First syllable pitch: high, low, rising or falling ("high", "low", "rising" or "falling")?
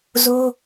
high